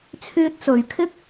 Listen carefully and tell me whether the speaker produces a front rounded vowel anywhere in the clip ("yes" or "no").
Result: yes